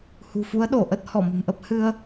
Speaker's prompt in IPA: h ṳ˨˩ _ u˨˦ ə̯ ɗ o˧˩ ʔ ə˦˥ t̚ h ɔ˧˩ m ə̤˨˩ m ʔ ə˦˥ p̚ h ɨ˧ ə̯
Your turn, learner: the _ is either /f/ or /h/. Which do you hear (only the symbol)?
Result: f